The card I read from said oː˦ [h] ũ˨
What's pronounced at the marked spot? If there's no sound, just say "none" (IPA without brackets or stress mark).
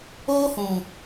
h